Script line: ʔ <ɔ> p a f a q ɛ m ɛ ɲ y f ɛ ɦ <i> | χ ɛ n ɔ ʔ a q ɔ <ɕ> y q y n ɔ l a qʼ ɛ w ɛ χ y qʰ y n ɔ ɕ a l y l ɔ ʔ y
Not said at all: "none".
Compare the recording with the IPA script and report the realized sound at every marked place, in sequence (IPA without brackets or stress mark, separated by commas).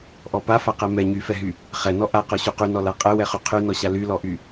ɔ, y, ɕ